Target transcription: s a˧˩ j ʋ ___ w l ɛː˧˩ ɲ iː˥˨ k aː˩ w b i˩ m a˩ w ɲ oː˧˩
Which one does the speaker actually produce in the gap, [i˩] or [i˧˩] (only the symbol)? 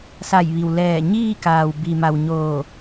i˩